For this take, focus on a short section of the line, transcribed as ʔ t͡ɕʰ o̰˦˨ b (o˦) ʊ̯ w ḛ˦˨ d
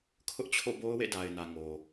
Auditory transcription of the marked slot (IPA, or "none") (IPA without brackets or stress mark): o˦